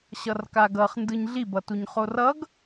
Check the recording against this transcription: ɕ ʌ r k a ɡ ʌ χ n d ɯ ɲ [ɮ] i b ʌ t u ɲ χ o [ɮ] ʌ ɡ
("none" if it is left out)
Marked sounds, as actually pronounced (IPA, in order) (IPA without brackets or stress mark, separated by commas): ɮ, r